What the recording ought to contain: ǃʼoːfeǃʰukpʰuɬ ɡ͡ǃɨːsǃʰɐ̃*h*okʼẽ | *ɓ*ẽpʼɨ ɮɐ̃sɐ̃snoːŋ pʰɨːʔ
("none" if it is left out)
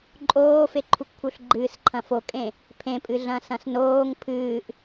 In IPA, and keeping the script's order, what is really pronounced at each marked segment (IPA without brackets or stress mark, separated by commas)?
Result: f, pʰ